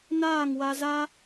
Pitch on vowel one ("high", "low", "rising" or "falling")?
falling